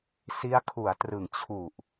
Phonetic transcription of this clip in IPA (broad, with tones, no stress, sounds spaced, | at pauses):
s i˦˥ a̯ kʰ u˩˦ a̯ t r ɯ˩˦ ŋ t͡ɕʰ u˨˩ ʔ